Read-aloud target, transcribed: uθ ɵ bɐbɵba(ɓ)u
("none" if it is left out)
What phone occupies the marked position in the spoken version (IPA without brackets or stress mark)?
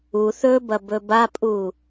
pʼ